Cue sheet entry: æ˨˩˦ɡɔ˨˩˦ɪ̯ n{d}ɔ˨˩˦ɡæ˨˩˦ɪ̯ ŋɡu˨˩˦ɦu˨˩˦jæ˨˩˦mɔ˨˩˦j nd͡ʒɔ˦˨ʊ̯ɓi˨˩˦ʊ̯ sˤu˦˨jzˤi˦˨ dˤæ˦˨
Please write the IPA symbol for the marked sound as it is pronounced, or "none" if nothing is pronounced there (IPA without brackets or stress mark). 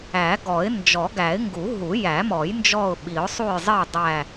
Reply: d͡ʒ